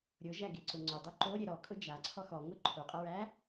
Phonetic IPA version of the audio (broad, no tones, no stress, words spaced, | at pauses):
ɾʲʊʒæɡeǀʊ ŋ͡ǀʊdˤʊ ǃoɾʲe ɾɔkʼʊ d͡ʒaǀʰɔ xɔŋʊ ǃʰoqʼəɹæ